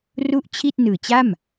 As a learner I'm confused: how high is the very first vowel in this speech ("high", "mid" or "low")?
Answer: high